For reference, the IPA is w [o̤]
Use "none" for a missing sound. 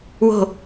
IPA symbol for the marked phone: o̤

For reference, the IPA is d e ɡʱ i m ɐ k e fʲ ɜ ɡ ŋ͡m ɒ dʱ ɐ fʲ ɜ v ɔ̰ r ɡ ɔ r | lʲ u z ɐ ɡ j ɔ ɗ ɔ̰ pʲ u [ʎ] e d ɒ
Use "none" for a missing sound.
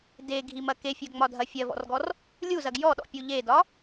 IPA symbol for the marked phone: ʎ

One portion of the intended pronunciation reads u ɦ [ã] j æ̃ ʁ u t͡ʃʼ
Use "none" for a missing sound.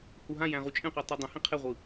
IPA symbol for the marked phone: ã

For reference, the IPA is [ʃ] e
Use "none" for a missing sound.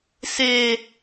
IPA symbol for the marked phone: s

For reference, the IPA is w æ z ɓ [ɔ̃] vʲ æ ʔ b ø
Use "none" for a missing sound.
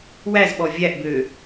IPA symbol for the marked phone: ɔ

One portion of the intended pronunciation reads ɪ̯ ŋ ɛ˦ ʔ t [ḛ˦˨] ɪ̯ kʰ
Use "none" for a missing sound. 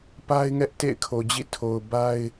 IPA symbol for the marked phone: ḛ˦˨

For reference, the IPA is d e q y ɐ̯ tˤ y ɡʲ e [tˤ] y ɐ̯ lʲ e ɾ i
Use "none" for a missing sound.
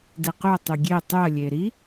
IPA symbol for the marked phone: tˤ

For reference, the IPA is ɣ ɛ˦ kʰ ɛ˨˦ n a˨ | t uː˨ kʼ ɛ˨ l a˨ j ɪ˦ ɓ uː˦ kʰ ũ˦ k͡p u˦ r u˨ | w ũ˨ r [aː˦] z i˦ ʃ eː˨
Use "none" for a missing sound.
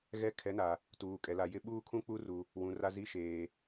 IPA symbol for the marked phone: a˦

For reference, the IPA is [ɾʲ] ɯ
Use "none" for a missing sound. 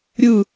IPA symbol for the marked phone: ɾʲ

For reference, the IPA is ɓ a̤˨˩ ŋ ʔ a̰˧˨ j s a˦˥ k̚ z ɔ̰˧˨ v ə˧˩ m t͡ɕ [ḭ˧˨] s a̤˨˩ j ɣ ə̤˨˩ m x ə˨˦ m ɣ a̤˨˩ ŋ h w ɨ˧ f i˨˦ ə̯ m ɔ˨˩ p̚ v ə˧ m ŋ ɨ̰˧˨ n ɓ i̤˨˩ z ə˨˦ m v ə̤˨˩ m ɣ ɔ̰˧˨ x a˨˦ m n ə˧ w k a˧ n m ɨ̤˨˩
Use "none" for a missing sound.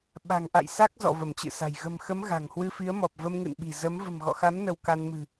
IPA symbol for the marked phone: ɨ̰˧˨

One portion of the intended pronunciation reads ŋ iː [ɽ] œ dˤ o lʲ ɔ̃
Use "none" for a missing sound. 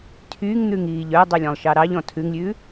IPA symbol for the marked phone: ʎ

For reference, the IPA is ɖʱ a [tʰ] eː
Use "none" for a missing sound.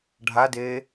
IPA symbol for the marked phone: d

